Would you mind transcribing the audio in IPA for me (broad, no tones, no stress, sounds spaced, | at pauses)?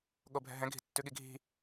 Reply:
ɠ o bʱ ɛ̤ ɦ ɛ̃ ɡʱ i̤ tː ʉ ɠ i ɡʱ i̤